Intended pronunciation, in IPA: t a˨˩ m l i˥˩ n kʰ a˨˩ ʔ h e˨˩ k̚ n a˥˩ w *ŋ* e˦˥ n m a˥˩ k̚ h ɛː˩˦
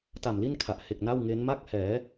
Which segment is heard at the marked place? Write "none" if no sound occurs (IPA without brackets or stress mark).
ŋ